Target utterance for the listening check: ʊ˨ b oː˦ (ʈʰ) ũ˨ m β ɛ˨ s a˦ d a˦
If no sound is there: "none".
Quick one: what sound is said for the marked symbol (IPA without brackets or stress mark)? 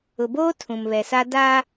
tʰ